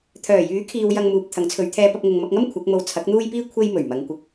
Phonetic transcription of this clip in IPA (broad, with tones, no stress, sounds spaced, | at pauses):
t̪ʰ œː˨˩ j yː˨˥ kʰ iː˨ w j ɐ˧ ŋ m uː˨ p̚ t̪ʰ ɐ˨˥ ŋ t͡sʰ ɵ˨˧ ɥ t̪ʰ ɛː˥ p ɐ˥ p̚ ŋ ʊ˧ ŋ m ɐ˧ k̚ ŋ ɐ˥ m kʷʰ ɐ˨˥ k̚ m o˧ w t͡sʰ ɐ˨˥ k̚ n̪ uː˥ j p iː˥ kʷʰ e˥ j m ɵ˨˩ ɥ m ɐ˨˧ ŋ kʷ ɪ˨˥ k̚